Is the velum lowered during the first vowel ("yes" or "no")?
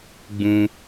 yes